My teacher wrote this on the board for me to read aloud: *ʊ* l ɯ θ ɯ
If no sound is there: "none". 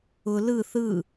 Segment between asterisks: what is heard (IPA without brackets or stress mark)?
ʊ